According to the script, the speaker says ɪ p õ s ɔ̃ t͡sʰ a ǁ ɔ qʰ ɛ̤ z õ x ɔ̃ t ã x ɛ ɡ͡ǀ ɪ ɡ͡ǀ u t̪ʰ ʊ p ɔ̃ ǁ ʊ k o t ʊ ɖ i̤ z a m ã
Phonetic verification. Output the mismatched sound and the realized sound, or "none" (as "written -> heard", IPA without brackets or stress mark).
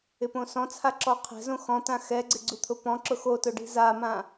k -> x